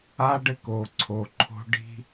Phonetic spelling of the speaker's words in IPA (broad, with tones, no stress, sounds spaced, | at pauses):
a˦ ɖ ɘ˦ k o˨ ǀʰ o˨ ǃʰ o̤˦ ɖ i̤˦